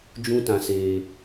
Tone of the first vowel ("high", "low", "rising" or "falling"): high